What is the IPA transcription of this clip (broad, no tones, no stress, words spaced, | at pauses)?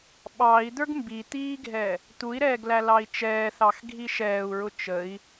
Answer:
ɓɑi̯ d̪ə˞ɡmbit̪iːɡʱɛ | t̪ui̯ɾɛːɡlæ lɑi̯t͡ʃɛːθɑx ɡʱiʃɛːu̯ɹʊ t͡ʃəi̯